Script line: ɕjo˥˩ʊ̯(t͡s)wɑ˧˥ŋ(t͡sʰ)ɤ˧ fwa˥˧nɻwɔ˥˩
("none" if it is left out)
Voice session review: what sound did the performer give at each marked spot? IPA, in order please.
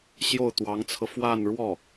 t̪, t͡sʰ

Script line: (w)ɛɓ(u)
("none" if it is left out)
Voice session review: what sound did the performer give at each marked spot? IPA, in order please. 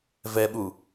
v, u

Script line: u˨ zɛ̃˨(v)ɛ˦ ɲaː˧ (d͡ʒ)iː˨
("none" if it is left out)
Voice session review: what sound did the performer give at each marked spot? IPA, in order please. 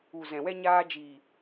w, d͡ʒ

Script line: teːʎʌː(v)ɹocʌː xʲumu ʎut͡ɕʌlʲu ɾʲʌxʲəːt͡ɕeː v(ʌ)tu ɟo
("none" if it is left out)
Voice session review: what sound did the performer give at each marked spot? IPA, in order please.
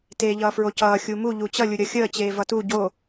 f, ʌ

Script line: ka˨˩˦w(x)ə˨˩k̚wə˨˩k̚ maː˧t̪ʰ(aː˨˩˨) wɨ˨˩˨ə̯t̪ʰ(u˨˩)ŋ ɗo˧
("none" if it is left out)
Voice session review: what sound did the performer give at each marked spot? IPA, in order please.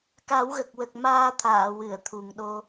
ɣ, aː˨˩˨, u˨˩

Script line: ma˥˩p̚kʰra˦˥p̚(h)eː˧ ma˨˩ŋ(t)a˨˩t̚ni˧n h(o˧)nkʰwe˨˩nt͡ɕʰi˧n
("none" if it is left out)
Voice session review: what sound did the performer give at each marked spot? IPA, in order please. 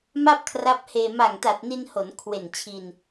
h, t, o˩˦

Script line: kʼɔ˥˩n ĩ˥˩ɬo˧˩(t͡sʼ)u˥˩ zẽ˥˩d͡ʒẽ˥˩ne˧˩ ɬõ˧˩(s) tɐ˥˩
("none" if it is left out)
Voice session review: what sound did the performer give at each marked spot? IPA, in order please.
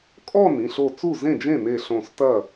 t͡s, s

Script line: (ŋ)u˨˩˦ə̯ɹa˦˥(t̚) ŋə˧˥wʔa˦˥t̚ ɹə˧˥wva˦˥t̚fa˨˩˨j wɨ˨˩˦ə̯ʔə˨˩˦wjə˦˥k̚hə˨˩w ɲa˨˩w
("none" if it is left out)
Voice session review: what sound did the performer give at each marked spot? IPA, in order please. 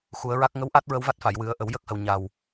x, k̚

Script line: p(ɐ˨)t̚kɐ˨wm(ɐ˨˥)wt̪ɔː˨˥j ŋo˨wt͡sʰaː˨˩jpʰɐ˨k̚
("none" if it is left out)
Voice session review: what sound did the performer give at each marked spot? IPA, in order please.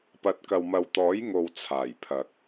ɐ˨, ɐ˨

